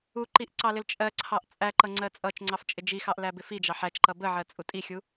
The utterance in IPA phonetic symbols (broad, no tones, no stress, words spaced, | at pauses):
uǃiʔ ǀɑlɪlt͡ʃʼɜǀʰɑʔ t͡sʼæǃʌ ŋ͡ǀɜt͡sʼʌt͡ʃŋ͡ǀɑf t͡ʃʼɪd͡ʒixɑʔ læbɪfid͡ʒɑ ħæt͡ʃǃʌ bəʕɜ t͡sʼutʼixʲu